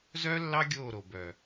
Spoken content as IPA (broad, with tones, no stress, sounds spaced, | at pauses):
z œ˦ lː ɑ˦ ɡʲ oː˦˨ ɾ o˨ b œ˨